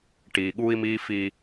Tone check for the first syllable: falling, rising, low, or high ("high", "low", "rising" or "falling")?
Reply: low